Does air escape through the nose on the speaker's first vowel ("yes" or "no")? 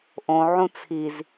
yes